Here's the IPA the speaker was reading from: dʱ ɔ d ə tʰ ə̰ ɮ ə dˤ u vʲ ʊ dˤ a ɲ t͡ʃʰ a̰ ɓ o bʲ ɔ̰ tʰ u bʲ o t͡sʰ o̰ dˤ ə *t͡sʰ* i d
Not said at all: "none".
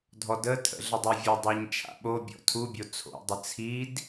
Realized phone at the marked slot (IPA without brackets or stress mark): t͡sʰ